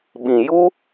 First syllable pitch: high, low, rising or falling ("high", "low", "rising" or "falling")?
low